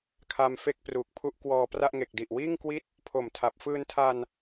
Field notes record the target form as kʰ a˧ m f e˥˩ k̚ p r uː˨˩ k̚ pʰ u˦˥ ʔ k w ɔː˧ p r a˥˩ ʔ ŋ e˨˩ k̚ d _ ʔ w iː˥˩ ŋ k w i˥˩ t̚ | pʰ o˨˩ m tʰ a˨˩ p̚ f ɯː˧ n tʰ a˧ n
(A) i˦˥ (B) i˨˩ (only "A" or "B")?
B